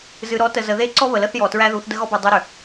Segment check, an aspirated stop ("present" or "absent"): absent